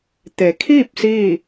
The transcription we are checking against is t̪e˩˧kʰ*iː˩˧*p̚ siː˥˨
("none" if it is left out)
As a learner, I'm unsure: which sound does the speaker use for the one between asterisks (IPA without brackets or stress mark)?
iː˥˨